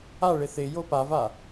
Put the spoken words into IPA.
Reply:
a ɭ ɪ θ ɪ j o p a v a

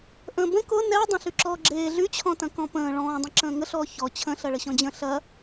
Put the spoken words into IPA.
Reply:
ʔ ə̃ː b ə̃ k ʊ n ɛ dˤ ɐ̃ ɬ y ǁ ɔː ɡ͡ǁ eː ɮ y t͡ɕʰ ɔ̃ t ɐ̃ k ɔ̃ p ə̃ː ɭ ɔ̃ː dˤ ə̃ ǁ ə̃ː ŋ ə ɬ ɔː ç ɔ t͡ɕʰ ə̃ ɬ ɐ ɭ ə ɕ ɔ̃ d͡ʑ ə̃ ɬ ɐ

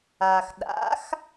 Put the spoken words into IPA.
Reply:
aː˩ x ɗ a̰˩˥ x

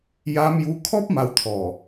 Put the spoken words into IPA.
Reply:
j a˧ m j u˧ kʰ ɔ˦ p̚ m a˧ w t̪ʰ ɔ˨˩

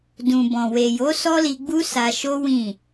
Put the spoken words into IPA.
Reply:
d ũ˨ b ɔ̃˨ w e˨ j o˨˦ s ɔ˦ l i˧ ɡ͡b u˦ s a˧ ʃ o˦ w ĩ˦˨

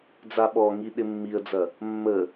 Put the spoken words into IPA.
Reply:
d͡z a ɓ ɔ ŋ i ɗ ɪ mː i ə̯ d͡z ɐ | mː ə

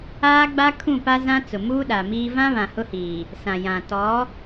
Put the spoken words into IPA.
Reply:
aː˦ ɡ͡b a˦ kʰ ũ˦˨ p a˦ z ã˦ t͡s ʊ˨ m uː˦ ɗ a˨ m iː˦ v ã˦ β ã˨ h ʊ˦ h iː˨ | s ã˨ j ã˨ t ɔ˨˦

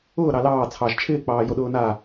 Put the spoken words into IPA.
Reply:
ʊː ɾ ɑ l ɑː t͡sʰ ɑ ʒ t͡ʃʰ ɪː k͡p ɑː j o ɗ ʊː n a

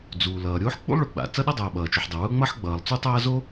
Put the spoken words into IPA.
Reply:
d͡z uː˩ l ʌː˩ ɾʲ oː˥ ħ k͡p ṵ˥ lˠ ɭ ʊ˩ ɡ͡b a̰˩ t͡s ʌ˥ ɗ ʌ˥ dˤ ʌː˩ ɓ ʌː˩ t͡ʃ u˩ ħ dˤ ʌ˩ w ʊː˥ ŋ͡m ʌ˥ ħ ɡ͡b ʌː˩ lˠ t͡s u˥ tˤ ʌː˥ z o˥

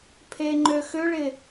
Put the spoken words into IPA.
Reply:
pʰ e ŋ͡ǃ ø x ʏ ɭ ɪ

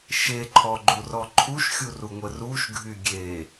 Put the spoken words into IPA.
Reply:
ʃ e ǃʰ ɔ ɡ͡ǃ u r ɔ ǃʰ u ʃ xʲ u r u ŋʷ ə r u ʃ ɡʱ y ɡʲ e

